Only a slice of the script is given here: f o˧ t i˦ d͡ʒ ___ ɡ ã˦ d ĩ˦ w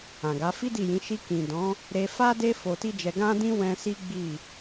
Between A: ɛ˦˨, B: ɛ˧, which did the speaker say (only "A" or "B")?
B